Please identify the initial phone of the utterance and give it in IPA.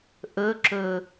ʔ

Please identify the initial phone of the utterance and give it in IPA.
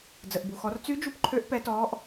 d͡z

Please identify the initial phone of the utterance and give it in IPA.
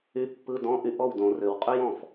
y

